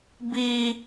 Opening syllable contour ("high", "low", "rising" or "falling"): high